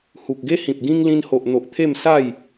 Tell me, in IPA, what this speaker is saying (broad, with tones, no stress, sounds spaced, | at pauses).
h u˨ k̚ ɡ e˦ h ĩ˨ p̚ ɡ ĩ˦ ŋ l ĩ˧ n h o˨ ʔ n̪ o˨ ʔ t̪ʰ e˥˧ m s a˥˧ j